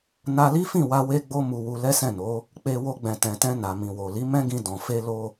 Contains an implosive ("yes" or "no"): no